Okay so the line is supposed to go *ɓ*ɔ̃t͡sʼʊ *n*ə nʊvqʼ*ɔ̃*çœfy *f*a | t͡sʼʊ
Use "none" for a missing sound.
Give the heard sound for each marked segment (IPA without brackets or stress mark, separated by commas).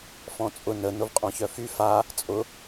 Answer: f, n, ɔ̃, f